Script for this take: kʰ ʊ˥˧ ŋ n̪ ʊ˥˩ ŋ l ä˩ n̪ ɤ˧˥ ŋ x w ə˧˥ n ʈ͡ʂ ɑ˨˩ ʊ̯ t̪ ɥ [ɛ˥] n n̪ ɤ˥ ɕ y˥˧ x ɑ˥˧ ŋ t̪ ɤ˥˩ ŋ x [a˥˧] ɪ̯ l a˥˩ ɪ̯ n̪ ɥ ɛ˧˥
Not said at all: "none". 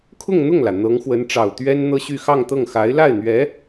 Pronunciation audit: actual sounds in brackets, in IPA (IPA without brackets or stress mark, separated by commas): ɛ˥, a˧˥